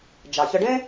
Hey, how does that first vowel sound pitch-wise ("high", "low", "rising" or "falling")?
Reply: low